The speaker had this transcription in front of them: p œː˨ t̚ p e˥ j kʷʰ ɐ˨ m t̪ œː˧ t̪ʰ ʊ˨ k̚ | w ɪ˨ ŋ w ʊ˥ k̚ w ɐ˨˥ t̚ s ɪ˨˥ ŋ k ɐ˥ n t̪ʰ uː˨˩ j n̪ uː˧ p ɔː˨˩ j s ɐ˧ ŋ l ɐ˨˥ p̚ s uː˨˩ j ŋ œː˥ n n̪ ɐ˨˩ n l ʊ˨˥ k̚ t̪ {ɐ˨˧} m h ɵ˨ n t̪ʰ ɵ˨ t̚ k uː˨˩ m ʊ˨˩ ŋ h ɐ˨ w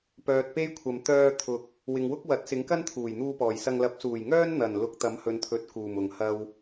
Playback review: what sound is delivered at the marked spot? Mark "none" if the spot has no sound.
ɐ˨˥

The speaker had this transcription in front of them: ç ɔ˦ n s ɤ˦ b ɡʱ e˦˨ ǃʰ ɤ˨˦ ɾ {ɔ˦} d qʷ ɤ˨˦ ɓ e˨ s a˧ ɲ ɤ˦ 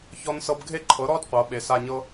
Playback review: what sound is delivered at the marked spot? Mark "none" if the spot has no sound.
ɔ˦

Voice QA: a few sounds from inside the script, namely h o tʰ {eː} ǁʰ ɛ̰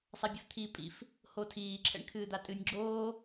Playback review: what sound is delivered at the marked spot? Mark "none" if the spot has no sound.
iː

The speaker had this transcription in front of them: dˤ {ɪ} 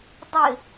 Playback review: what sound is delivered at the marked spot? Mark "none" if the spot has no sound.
ɪ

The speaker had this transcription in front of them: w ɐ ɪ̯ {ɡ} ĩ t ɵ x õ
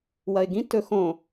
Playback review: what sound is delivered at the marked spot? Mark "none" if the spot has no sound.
ɡ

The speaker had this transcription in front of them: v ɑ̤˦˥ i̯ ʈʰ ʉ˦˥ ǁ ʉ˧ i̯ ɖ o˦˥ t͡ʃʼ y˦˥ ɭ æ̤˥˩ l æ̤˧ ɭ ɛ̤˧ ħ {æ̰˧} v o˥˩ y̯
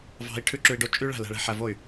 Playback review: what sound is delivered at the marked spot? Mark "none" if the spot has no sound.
æ˧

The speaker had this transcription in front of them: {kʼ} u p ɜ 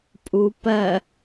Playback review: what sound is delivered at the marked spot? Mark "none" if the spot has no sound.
pʼ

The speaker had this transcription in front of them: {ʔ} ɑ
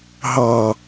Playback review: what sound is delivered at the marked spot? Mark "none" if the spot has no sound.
ɦ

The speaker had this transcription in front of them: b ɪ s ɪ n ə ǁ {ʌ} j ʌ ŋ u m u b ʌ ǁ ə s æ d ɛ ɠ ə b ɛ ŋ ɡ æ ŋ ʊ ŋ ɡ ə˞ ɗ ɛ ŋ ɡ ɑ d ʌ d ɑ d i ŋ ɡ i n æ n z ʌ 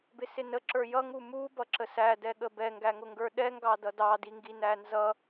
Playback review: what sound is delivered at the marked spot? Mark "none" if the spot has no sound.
ə˞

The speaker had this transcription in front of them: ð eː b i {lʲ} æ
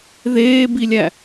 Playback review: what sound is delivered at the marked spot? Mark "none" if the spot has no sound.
lʲ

